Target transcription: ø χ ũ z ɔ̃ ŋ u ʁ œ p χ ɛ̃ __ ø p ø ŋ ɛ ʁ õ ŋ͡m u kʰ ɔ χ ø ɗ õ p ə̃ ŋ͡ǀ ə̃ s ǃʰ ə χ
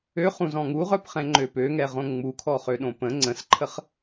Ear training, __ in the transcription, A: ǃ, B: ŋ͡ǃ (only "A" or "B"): B